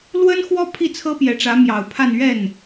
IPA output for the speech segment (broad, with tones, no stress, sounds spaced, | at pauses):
l w ə˥ n x w ɔ˥ pʰ i˥˩ t͡sʰ ɤ˥ p j ɛ˨˩ ʈ͡ʂ ä˧˥ m j ɑ˨˩ ʊ̯ pʰ a˥˧ n ɥ ɛ˥˩ n